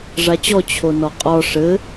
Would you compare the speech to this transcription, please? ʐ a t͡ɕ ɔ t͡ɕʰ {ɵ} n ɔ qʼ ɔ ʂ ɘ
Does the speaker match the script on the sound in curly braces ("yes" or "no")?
no